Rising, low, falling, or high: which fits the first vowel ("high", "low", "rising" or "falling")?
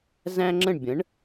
high